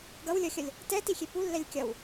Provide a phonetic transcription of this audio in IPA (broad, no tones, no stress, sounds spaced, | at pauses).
ɡ ʌ w lʲ ʌ xʲ ʌ lʲ | t ɛ t i xʲ e p u lː ɛ lʲ kʲ ʌ w